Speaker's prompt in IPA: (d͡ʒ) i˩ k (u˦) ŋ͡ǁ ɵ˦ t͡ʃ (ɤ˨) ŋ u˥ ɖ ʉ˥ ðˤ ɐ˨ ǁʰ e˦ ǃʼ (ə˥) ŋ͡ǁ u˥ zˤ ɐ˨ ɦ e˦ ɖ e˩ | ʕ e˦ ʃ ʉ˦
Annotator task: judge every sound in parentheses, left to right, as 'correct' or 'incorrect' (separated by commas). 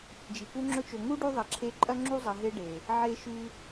correct, correct, incorrect, incorrect